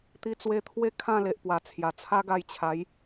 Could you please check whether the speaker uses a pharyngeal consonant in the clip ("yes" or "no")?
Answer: no